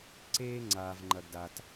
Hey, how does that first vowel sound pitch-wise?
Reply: high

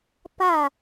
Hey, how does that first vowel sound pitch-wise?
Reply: falling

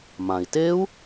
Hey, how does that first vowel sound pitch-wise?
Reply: low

